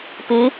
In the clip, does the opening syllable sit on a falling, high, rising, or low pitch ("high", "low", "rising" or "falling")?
rising